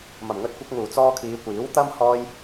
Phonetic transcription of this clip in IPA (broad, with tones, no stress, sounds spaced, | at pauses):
m ɐ˨˩ m ŋ ɵ˨ t̚ kʷ ɐ˧ k̚ ŋ uː˨˩ t͡s ɔː˧ kʰ iː˨˧ kʷ iː˨˥ w t̪ ɐ˥ m h ɔː˧ j